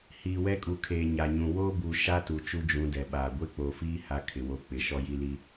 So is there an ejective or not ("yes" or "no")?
yes